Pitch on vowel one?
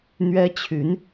high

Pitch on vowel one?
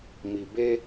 low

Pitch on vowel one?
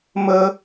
high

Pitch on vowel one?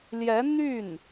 rising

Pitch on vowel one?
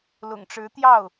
low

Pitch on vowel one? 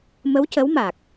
rising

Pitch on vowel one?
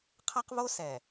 high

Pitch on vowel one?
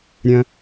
low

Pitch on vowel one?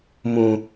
low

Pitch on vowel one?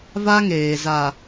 high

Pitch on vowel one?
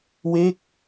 falling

